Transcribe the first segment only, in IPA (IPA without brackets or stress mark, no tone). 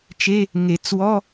t͡ʃ